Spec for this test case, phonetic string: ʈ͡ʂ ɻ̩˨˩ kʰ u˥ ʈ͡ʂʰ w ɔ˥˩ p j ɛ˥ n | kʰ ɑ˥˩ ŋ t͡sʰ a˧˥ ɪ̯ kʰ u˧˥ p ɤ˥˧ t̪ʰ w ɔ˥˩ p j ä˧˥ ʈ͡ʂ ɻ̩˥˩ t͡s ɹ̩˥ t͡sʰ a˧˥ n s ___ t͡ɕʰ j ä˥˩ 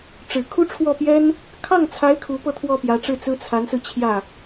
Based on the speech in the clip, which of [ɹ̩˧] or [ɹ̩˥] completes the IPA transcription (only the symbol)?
ɹ̩˧